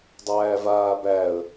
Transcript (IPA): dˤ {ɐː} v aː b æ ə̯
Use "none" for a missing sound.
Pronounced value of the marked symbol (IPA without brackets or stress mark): æː